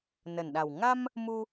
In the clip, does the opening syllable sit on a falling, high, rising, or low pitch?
low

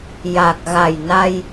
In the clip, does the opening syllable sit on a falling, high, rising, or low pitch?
low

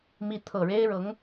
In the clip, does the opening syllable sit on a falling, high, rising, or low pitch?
rising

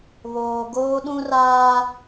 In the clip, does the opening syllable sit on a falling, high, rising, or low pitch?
low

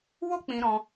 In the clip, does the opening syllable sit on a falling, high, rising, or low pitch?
high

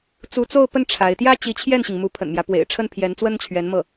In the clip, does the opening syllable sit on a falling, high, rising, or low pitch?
rising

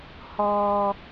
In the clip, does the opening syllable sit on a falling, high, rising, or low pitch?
high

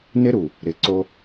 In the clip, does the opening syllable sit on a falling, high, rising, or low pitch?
high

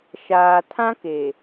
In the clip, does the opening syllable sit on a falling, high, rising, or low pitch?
low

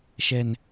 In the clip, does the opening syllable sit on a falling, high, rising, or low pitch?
low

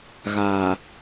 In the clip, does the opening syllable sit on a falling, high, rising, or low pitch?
low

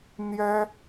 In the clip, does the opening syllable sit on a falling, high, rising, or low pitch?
high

